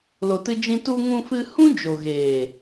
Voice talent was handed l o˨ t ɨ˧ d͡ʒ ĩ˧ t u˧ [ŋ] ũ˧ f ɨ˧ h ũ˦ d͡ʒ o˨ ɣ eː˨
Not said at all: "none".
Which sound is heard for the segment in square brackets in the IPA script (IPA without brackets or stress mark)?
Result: ŋ